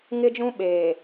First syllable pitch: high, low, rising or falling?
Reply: high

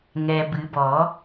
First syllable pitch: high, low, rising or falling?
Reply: low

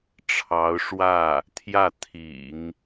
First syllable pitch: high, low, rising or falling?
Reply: rising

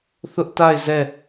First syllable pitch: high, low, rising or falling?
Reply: high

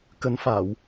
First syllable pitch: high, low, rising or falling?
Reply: rising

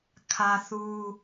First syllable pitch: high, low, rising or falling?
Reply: high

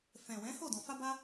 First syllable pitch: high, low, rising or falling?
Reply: low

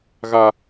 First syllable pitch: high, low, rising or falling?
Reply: high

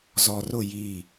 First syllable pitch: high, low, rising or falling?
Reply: low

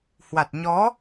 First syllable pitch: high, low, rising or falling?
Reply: low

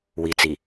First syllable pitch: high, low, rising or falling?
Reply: low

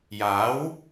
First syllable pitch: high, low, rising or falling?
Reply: rising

